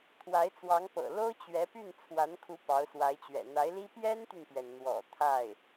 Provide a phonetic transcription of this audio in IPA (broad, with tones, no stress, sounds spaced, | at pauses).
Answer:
t̪ʰ w a˧˥ ɪ̯ t͡s w ɑ˧˥ ŋ p ɤ̰˨˩ l o˥ ʊ̯ t͡ɕ ɥ ɛ˧˥ p y˥˩ n t͡sʰ w a˧˥ n kʰ u˧˥ p ɑ˧˥ ʊ̯ s w a˧˥ ɪ̯ t͡ɕ ɥ ɛ̰˨˩ n̪ a˧˥ ɪ̯ l i˥ p j ɛ˥ n t̪ y˨ n p ɥ ɛ˩ n n̪ w ɔ̰˨˩ t̪ʰ a˥˩ ɪ̯